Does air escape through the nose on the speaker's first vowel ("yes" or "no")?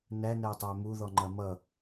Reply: no